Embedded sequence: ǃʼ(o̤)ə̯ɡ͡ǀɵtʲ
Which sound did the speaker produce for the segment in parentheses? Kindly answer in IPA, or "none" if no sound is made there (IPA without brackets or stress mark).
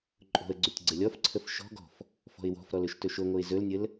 o̤